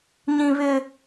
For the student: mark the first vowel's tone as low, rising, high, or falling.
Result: high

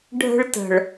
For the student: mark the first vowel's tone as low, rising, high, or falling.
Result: high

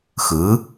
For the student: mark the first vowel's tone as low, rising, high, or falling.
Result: rising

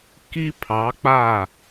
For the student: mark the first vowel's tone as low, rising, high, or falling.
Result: high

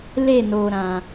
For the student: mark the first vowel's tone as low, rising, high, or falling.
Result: falling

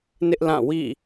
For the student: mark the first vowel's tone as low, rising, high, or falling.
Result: high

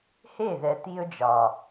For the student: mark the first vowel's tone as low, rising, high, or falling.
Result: falling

